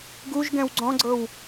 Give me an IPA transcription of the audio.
ɡ u ʒ ɡ ɛ̃ w ɡ͡ǀ ɔ̃ ɡ͡ǀ ɤ w

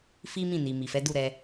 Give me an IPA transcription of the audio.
f i˦ m ĩ˦˨ n i˨ m i˨ f ɛ˨˦ d u˦˨ ɾ ɛ˧

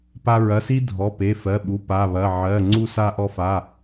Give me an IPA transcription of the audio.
p a˧ ɹ ɐ˩˧˩ s i˧ dʱ ɔ˩˧˩ p e˩˧˩ f ɜ˩˧˩ ɓ u˩˧˩ p a˩˧˩ β ɐ˩˧˩ ʕ ɜ˩˧˩ ŋ͡ǀ u˧ s a˧ ʔ ɔ˧ f a˩˧˩

